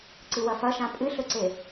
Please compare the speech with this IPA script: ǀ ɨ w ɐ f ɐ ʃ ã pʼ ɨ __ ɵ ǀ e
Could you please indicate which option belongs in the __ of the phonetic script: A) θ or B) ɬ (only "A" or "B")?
B